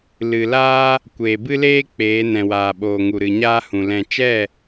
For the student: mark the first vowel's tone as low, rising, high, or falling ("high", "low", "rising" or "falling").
low